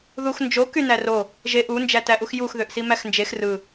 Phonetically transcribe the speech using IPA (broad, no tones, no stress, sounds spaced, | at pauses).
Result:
ð u x n d͡ʒ o k y n æ r o | ʒ e ʔ u n d͡ʒ æ t æ ʔ u x j u x ð ø ʔ s i m æ x n d͡ʒ e x r ɯ